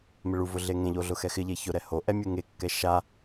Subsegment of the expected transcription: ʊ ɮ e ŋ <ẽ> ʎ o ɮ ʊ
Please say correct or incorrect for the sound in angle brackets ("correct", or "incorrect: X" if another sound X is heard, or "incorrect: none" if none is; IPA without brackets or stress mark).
correct